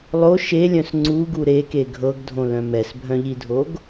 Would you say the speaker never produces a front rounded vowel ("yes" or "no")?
no